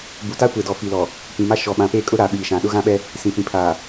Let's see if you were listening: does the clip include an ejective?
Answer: yes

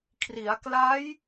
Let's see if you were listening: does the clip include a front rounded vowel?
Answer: no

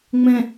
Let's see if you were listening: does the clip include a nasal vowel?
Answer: yes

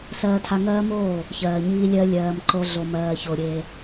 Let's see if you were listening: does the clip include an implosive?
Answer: no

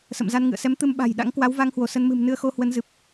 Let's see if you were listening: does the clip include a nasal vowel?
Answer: no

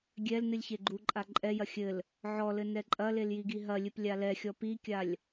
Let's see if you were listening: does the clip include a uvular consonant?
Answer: no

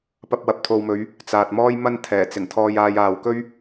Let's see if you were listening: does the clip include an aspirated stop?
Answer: yes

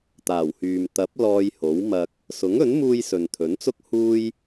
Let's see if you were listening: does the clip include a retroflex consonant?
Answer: no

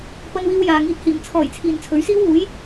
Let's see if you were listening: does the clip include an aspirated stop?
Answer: yes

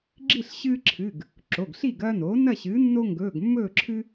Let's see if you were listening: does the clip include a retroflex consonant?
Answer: no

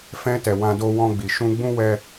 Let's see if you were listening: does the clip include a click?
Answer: no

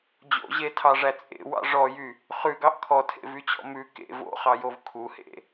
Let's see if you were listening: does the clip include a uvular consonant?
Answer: yes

